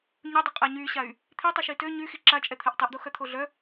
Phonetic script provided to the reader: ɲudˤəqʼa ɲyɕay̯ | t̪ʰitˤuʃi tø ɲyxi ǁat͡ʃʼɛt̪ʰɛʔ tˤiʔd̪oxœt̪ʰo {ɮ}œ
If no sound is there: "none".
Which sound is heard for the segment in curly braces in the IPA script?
ɮ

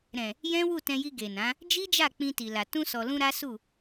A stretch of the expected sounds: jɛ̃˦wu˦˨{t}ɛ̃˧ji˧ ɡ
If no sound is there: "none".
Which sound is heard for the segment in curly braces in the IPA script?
t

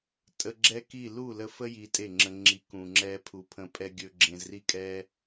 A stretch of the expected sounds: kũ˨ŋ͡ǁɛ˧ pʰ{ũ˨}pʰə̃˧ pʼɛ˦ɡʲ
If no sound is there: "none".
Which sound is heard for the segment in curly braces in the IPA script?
u˨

